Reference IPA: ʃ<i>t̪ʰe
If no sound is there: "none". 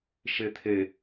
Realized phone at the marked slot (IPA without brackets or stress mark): e